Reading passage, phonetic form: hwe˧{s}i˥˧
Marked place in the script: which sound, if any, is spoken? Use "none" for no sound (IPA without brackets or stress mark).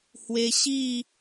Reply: ɕ